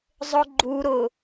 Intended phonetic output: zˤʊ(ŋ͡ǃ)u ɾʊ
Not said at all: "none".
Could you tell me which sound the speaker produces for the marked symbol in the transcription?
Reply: ɡ͡ǃ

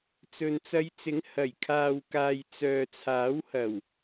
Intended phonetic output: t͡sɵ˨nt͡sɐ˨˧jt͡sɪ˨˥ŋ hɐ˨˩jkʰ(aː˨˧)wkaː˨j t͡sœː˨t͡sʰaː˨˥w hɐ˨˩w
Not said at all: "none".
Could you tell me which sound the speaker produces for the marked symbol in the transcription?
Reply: aː˨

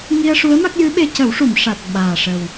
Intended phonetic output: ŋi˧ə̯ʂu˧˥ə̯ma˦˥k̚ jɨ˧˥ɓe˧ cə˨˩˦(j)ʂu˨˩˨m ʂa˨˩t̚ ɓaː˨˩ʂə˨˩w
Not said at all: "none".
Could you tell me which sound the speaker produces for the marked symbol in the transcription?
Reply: w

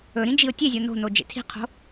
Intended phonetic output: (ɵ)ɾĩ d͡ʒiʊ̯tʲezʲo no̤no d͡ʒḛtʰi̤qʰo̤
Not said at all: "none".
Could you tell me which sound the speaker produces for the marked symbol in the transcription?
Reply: ɵ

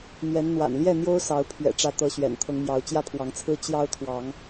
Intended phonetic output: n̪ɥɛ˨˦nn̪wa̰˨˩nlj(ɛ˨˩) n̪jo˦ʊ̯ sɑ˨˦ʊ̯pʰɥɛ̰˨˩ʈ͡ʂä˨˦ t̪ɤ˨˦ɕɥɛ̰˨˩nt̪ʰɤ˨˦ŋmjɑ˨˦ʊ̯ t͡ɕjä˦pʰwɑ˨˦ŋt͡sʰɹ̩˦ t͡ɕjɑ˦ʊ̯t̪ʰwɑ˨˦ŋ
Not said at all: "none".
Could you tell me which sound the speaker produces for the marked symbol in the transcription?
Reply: ɛ˥˨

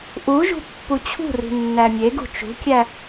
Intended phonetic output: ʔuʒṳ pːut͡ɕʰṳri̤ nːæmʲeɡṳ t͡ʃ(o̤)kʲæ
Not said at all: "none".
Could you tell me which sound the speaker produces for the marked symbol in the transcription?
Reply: ṳ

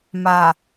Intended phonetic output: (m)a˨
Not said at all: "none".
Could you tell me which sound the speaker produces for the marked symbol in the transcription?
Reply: m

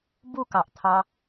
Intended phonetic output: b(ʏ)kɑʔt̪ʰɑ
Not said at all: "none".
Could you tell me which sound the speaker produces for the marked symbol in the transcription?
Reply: u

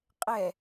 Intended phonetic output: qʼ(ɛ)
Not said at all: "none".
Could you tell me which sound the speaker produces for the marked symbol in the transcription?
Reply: ɛ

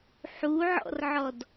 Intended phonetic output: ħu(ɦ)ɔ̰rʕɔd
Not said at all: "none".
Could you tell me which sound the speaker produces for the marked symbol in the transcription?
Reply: ʕ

